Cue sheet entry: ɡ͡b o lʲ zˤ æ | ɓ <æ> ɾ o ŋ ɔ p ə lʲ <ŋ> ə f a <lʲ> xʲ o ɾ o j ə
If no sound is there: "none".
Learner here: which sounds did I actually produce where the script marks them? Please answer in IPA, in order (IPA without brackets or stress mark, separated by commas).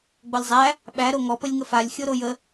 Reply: æ, ŋ, lʲ